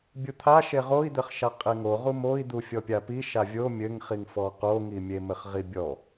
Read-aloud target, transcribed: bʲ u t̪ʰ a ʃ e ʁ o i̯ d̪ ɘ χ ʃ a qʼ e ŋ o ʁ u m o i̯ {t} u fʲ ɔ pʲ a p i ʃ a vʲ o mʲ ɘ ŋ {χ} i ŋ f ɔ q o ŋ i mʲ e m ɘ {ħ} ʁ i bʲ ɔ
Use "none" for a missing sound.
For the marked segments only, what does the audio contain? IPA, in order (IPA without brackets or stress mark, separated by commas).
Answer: d̪, χ, χ